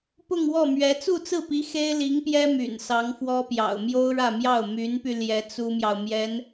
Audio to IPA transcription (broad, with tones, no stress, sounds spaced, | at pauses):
p ʊ˥˧ ŋ w ɔ˥˩ m ɥ ɛ˧˥ t͡s u˥˧ t͡s ɹ̩˥˩ p i˧˥ x e˥ ɪ̯ l i˧˥ ŋ p j ɛ˥ m y̰˨˩ n s ɑ˧˥ ŋ f w ɔ˥ p j ɑ̰˨˩ ʊ̯ m j o˥ ʊ̯ ɻ ä˥˧ m j ɑ˥˩ ʊ̯ m y˧˥ n p y˧ l j ɛ˧˥ t͡s u˥ m j ɑ˨ ʊ̯ m j ɛ˧˥ n